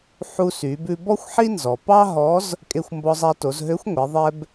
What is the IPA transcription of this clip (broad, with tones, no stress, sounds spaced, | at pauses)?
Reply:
ħ u˧ s y˩˧ b ʉ˧ b ɔ˥ xʷ ħ i˥ n z ɔ˩ p ɑ˥ ɦ ɔ˧˥ z | kʼ e˧ xʷ m b ɔ˧ zˤ æ˧ t o˩˧ z ɦ ø˧˥ xʷ ŋʷ e˩˧ ðˤ ɛ˧ b